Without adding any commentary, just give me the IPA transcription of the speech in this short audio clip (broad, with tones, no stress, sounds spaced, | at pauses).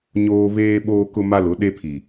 ɲ oː˦ β eː˦ ɓ oː˦ k ʊ˦ m a˦ l ʊ˨˦ ɗ e˦ pʰ i˨